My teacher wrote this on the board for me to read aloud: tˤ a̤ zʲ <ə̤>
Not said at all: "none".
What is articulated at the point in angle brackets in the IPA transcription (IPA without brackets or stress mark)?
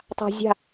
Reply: a̤